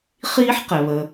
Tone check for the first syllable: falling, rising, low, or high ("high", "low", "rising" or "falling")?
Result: high